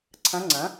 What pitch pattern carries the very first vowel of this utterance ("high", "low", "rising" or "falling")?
rising